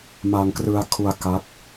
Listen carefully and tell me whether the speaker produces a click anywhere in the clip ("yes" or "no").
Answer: no